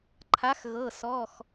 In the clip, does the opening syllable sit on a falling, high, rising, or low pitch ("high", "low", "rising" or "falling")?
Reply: rising